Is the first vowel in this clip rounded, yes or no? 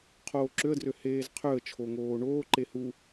yes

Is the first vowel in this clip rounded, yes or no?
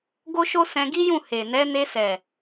yes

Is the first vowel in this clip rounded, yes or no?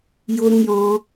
yes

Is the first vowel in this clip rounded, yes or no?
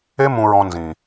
no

